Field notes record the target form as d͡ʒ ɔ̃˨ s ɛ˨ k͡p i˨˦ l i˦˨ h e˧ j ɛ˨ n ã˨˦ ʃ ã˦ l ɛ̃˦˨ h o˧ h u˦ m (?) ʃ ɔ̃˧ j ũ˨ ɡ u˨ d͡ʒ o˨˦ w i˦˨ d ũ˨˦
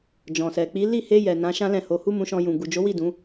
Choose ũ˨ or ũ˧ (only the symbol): ũ˧